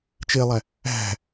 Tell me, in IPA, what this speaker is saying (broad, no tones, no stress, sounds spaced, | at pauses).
t͡ʃ e lˠ æ | æ̤